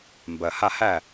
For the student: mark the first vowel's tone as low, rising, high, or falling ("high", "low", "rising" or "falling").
low